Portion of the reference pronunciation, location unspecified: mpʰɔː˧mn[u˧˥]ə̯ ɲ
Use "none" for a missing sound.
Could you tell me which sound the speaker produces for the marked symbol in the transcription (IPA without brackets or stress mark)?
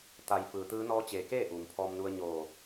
u˧